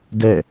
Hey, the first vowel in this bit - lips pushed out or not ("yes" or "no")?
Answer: no